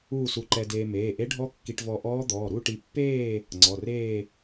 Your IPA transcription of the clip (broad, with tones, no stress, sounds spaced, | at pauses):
uː˥˧ s u˧ ǃ ɛ˧ d eː˧ m eː˩˧˩ ʔ e˦˥ ɖʱ ɔ˦˥ kː i˧ ʈ v ɔ˧ ʔ ɔː˦˥ d̪ ɔː˩˧˩ ɾ u˥˧ ʈ i˧ pː eː˥˧ | ŋ͡ǀ ɔ˩˧˩ r eː˥˧